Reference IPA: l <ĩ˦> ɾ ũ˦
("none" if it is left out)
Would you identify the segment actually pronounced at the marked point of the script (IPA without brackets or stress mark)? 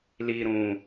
i˦